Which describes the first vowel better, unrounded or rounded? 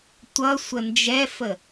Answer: unrounded